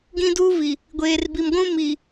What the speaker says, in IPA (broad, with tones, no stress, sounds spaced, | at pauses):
ɡ ĩ˦ d uː˦ v i˨ | ɡʷ eː˨ r b i˨ m ɡʷ ũ˦ m i˨